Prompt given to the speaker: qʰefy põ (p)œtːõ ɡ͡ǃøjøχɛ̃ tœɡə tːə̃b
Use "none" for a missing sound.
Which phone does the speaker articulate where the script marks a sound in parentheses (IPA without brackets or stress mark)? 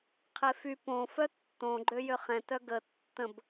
f